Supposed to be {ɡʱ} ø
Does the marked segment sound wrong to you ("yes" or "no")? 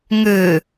yes